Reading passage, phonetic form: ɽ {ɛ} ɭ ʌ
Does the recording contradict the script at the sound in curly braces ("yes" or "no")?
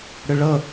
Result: yes